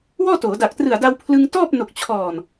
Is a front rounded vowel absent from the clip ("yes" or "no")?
yes